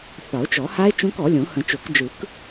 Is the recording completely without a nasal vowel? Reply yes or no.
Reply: no